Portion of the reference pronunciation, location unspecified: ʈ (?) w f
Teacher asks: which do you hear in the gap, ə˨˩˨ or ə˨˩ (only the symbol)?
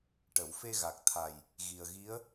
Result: ə˨˩˨